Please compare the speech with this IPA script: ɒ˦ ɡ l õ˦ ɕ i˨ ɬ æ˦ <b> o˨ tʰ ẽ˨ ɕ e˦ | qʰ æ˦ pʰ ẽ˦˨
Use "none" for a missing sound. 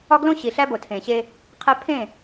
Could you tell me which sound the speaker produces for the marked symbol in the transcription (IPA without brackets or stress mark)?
b